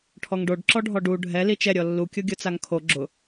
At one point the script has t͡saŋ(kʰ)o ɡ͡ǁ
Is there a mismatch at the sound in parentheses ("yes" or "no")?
no